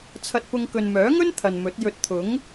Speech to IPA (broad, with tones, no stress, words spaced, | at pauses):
t͡sʰɐ˧t̚pʊ˧ŋ kɵ˨nmœː˨˥ŋɵ˥n t̪ʰɐ˨nmɵ˨˥t̚jɵ˧t̚ t̪ʰʊ˨˥ŋ